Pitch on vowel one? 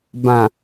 low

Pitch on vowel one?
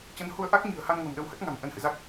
rising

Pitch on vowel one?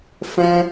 high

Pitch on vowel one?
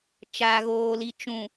low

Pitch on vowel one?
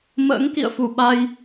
rising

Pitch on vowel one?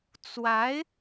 rising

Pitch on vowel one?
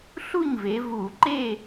falling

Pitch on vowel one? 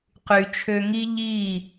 low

